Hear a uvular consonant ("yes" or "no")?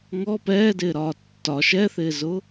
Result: no